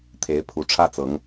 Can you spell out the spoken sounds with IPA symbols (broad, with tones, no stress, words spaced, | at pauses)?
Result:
t̪ʰe˨˦ɪ̯pʰu˨˦ ʈ͡ʂʰä˦t͡sɤ˨˦ŋ